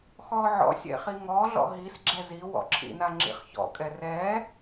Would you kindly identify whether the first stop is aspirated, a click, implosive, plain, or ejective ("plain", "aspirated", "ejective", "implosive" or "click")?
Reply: click